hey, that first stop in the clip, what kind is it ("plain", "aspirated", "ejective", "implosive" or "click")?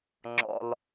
click